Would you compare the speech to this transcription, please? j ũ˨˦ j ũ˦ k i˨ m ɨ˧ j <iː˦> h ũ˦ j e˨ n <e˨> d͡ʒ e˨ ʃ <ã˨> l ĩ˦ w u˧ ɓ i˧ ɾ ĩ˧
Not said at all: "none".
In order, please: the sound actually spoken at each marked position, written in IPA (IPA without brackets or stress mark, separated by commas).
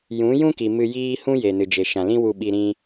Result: iː˦, ɨ˨, ã˨